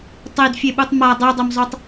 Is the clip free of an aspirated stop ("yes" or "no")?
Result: yes